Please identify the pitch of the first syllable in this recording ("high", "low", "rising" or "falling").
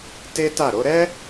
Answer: high